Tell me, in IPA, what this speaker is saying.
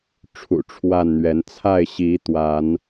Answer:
ʈ͡ʂʰṵ˨˩ʈ͡ʂʰwa˥˨nn̪ɥɛ˨˦n t͡sʰa˥˨ɪ̯ɕi˨˦t̪wa˨˦n

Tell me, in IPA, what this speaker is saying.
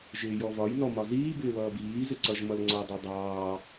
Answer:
ʒɪːjɔvɒj nɔmɒziː bɪːβʌːbiː zɪǀʌʒ mʌlŋ͡ǀɔ dˤidˤɑː

